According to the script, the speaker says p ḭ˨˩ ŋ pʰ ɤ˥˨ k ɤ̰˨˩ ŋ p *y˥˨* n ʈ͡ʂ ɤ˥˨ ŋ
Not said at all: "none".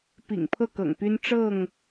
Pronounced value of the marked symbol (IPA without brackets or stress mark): y˦